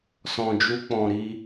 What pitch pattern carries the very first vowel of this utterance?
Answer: low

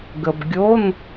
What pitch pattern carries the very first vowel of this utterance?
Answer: low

